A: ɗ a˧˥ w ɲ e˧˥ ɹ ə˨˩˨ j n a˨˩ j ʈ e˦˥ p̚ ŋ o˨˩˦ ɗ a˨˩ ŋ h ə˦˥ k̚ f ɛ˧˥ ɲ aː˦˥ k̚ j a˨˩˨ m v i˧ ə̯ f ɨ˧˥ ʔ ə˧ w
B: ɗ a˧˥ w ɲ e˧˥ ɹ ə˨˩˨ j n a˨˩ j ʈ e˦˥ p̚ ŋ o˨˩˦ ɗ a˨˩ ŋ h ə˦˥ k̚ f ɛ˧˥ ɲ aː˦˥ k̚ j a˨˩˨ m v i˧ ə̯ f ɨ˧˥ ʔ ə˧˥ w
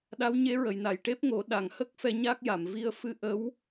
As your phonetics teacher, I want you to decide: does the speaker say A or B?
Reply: B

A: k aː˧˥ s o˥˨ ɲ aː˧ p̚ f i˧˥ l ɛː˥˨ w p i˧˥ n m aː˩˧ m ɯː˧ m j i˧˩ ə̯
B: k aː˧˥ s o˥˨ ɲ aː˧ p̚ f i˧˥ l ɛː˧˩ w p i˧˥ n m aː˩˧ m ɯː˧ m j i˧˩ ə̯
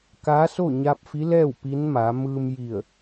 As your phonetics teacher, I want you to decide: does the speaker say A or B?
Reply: A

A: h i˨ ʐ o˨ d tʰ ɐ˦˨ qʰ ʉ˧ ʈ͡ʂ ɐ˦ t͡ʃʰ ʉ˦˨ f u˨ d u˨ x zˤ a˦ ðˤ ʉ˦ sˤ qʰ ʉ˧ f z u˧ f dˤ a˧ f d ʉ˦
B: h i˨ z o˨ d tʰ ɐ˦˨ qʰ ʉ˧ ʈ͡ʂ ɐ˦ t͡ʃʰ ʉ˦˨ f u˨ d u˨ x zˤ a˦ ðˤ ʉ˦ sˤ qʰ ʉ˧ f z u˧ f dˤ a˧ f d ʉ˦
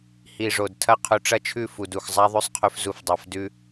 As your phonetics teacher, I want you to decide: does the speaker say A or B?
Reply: A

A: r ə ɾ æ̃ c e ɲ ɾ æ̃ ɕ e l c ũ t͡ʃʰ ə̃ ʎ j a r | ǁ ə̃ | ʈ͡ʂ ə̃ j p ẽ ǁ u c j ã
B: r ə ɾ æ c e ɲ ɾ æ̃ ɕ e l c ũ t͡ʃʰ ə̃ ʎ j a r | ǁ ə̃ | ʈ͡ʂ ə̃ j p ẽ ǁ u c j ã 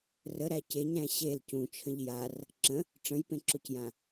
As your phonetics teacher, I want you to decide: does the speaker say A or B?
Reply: B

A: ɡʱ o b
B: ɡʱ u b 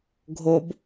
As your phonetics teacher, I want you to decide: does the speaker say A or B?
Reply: A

